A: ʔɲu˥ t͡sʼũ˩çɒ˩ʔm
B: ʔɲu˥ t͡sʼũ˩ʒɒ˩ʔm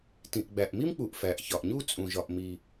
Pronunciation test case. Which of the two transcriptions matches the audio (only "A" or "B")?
B